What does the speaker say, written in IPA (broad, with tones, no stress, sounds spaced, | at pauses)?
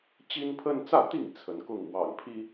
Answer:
t͡ɕ i˦ n pʰ ə˦ n t͡s ä˥˨ t̪ i˥˨ ŋ t͡sʰ ə˨˦ n k ʊ˥˨ ŋ w ɑ̰˨˩ ŋ pʰ i˦